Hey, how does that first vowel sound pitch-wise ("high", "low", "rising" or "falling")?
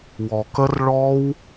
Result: low